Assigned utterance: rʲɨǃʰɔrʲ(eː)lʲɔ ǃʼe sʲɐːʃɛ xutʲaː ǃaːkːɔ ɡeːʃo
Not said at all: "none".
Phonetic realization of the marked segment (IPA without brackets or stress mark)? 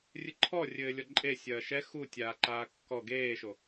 ɘː